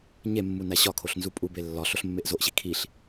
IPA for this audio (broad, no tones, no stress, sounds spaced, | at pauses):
ɲ e mː u n æ ɕ ɒ kʰ o ɬ n z u pʼ u b e lː ɒ ɬ o ɬ mː e ʔ z o ʔ ɕ i kʰ i ɬ